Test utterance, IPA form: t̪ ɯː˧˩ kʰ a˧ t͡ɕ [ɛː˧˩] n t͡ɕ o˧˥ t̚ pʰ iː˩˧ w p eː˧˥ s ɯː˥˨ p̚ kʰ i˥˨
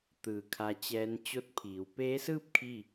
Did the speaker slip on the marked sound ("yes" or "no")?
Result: yes